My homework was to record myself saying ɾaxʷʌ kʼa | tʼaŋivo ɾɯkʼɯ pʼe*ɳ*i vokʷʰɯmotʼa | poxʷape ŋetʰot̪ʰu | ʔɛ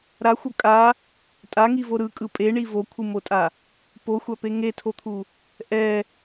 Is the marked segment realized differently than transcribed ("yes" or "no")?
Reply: no